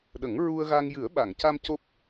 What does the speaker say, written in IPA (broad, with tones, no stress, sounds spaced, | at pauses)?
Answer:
ɗ ə˨˩˦ ŋ ɹ u˧ ə̯ ɣ a˧ ŋ j ɨ˨˩˦ ə̯ ɓ a˨˩˨ ŋ c a˧ m c o˦˥ p̚